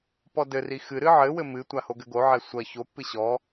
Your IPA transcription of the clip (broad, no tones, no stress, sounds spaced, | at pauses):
p ɔ d ɘ r i x ɨ ɾ ɨ ʕ ɘ w ɘ m ɨ tʷ a h o ɡ ɘ ɡ o ʕ ɛ sʷ ɐ ç o pː ɨ ɕ ɔ